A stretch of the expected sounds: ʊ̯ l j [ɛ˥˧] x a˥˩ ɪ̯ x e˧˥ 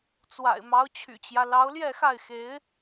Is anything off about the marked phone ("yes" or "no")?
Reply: no